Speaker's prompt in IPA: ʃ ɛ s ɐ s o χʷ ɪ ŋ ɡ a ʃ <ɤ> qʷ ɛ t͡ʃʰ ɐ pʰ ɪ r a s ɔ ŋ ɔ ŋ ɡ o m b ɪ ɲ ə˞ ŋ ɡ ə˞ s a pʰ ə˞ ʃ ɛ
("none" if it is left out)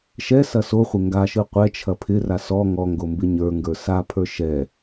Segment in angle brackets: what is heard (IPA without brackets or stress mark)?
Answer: ɯ